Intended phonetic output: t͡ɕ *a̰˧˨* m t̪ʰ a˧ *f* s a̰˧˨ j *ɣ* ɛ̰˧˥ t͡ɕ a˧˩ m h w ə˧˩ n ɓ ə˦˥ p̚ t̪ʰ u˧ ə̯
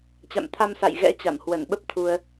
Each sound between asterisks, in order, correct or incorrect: correct, incorrect, correct

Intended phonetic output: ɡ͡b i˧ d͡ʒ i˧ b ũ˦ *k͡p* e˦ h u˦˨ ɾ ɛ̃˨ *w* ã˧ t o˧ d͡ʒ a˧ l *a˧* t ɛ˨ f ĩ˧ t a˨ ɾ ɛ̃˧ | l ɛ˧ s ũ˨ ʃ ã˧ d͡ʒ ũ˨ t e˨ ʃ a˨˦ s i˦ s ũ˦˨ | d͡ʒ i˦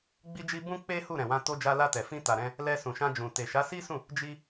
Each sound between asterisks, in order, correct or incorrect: correct, correct, correct

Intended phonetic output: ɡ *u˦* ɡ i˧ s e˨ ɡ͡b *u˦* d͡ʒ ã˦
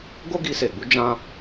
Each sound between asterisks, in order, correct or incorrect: incorrect, incorrect

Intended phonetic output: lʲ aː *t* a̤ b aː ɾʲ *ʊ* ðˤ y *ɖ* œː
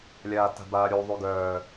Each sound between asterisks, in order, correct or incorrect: correct, incorrect, incorrect

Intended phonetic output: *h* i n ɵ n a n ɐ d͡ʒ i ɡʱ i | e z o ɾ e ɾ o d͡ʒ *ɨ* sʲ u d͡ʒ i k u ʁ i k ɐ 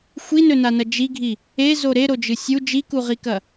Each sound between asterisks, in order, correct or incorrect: incorrect, correct

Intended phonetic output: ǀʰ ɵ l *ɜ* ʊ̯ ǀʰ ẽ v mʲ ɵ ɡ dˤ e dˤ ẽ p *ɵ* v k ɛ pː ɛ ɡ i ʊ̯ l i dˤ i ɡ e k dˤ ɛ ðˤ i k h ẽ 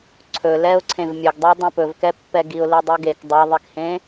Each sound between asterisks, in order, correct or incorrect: incorrect, correct

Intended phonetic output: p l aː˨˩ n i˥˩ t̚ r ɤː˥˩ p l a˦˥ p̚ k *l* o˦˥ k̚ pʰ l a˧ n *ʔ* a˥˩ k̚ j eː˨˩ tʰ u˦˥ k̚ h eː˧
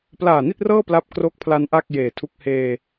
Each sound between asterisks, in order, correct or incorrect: incorrect, correct

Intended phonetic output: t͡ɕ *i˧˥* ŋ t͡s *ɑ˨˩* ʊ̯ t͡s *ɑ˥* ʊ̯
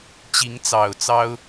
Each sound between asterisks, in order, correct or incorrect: correct, correct, correct

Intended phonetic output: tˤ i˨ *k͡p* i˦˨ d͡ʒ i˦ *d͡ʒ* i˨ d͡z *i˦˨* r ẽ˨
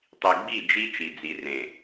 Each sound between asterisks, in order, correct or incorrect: incorrect, incorrect, incorrect

